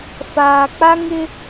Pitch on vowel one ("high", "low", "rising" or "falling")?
low